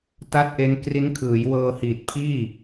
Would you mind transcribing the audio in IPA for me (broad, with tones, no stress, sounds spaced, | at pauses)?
t a˥˩ t̚ ʔ e˦˥ n k r i˦˥ n kʰ ɯː˩˦ j w ɤː˧ h iː˨˩ t̚ pʰ iː˥˩